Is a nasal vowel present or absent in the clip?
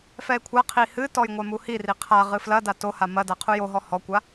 absent